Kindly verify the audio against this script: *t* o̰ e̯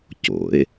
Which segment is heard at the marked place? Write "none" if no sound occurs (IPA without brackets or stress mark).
c